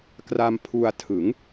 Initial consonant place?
velar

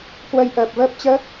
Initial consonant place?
velar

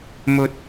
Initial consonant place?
labial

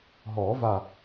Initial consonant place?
glottal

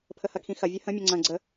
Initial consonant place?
labial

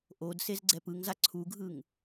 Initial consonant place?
glottal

